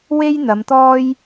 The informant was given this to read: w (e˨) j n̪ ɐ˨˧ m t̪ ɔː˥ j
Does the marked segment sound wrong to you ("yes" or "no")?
yes